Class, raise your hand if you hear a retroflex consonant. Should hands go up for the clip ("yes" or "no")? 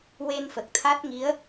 no